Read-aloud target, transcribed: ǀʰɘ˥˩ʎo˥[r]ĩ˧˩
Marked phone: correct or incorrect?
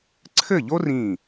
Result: correct